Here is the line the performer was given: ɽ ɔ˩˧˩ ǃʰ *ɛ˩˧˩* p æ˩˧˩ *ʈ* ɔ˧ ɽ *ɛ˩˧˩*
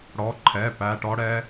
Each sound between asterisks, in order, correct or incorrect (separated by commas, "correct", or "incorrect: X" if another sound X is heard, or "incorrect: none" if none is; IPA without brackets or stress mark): correct, correct, incorrect: ɛ˧